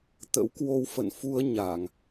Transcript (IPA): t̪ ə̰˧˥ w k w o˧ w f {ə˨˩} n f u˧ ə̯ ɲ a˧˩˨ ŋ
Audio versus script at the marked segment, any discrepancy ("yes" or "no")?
yes